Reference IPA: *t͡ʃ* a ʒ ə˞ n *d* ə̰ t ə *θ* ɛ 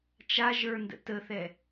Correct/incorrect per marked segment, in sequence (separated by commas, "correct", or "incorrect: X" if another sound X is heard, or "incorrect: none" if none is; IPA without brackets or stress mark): correct, correct, correct